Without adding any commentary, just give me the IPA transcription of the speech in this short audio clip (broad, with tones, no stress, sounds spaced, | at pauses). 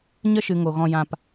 ɲ ə˦ ʃ ɨ˨ ŋ o˨ ɣ ɔ̃˧ j ã˧ p